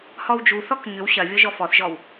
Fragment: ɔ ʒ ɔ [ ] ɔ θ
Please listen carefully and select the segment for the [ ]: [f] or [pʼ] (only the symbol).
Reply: f